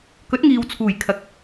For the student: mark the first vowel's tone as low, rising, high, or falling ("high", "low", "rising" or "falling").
rising